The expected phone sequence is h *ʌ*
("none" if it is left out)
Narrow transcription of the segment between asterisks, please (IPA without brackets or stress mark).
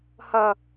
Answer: ʌ